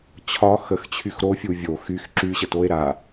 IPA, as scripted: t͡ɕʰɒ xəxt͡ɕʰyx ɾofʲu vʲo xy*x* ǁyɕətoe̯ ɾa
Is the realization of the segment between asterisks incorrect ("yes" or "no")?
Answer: no